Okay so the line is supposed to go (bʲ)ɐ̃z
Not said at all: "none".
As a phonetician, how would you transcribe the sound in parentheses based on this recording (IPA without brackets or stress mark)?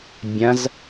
bʲ